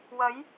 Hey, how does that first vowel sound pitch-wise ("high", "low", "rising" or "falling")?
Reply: rising